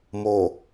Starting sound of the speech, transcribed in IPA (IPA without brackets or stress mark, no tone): m